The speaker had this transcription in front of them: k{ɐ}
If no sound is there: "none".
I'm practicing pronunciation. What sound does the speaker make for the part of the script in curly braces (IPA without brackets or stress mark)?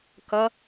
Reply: ɐ